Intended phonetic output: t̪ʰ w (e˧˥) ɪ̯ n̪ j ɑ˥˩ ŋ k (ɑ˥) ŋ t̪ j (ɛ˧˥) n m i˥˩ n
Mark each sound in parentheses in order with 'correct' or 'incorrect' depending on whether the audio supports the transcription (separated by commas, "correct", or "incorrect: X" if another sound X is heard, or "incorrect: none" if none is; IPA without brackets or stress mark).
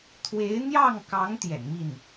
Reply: correct, incorrect: ɑ˧˥, incorrect: ɛ̰˨˩